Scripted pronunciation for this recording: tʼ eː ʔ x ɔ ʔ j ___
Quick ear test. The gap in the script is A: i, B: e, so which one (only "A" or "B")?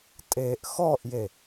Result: B